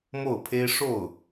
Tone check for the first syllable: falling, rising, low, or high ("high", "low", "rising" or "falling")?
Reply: falling